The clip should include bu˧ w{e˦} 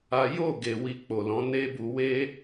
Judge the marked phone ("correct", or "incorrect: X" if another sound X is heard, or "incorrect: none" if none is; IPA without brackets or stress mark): correct